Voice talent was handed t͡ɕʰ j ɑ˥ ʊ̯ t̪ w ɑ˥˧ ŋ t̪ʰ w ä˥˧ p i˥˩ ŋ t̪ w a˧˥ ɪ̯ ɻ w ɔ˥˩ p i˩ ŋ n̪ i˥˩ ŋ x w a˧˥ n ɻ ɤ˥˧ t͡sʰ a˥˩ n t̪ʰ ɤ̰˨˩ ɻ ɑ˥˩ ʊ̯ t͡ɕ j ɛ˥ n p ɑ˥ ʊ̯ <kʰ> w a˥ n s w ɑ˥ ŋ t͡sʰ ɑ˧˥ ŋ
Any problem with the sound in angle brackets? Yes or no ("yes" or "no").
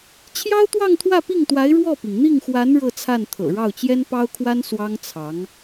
no